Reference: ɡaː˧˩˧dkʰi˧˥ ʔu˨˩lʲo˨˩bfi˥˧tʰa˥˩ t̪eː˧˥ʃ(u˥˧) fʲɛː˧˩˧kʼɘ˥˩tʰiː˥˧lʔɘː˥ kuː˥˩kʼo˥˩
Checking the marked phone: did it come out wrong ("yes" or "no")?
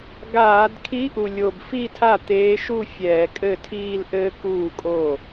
no